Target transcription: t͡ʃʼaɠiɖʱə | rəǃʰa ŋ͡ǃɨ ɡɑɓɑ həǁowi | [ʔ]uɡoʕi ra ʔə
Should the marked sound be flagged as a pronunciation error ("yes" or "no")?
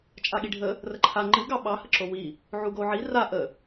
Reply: yes